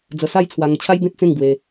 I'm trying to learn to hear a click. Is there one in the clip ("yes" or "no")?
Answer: no